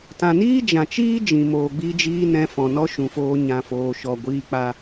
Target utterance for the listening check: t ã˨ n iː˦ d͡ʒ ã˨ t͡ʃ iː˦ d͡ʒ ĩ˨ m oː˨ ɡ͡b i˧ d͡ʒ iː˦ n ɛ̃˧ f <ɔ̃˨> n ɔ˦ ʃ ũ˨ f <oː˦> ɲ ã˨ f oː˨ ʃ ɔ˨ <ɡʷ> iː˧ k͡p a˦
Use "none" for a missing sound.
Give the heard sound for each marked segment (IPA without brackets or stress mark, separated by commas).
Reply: ɔ̃˨, oː˧, ɡʷ